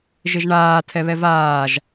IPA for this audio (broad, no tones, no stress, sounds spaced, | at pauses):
ʒ ɪ ʒ ɳ aː tʰ ɛ β ɛ v aː ʒ